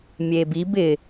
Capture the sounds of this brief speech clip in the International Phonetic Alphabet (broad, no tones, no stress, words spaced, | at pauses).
mʲebib ɪ